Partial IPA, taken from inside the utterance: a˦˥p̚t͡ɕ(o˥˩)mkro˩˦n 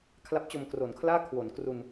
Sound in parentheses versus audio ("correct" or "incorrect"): incorrect